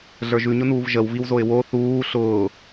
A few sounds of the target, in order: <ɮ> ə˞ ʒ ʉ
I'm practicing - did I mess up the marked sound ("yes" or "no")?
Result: no